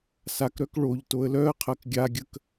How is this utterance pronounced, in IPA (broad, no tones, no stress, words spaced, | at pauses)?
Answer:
sakɾœk ɭoʎ toə̯lœə̯qʰɜk ɡʲaɡʲək